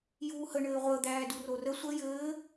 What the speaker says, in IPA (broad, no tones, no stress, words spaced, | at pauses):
juːhə ɳɘːʁʷə d̪æːdurorə sʷə jɘː